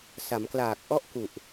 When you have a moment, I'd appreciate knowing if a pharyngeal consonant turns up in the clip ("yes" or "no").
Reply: no